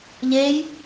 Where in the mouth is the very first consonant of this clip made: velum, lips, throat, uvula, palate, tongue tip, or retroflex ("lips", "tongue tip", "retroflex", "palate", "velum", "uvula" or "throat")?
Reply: palate